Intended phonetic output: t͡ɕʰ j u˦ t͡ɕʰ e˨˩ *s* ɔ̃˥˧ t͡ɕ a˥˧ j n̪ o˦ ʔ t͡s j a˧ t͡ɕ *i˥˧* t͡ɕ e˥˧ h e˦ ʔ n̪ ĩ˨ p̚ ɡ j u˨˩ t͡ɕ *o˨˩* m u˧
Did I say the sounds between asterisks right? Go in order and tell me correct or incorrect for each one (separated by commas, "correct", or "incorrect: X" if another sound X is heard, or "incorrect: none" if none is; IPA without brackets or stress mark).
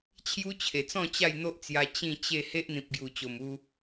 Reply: incorrect: t͡s, incorrect: ĩ˥˧, correct